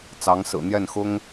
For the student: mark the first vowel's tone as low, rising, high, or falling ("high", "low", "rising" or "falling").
rising